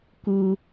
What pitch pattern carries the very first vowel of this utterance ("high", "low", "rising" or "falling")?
high